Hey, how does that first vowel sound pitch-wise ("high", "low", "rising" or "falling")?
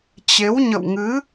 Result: rising